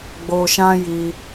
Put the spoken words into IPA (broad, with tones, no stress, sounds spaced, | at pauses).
ɡ͡b o˧ ʃ ã˦ j i˧